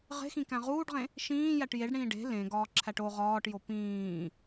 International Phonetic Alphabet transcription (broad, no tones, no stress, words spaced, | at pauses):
ʁe̤xĩkæ̃ ʁuːɖʁẽ | ʃĩː jæʈjeɖɽĩː ɖe̤ lẽɡɒː ǁʰæʈo ʁɒːʈjo pĩː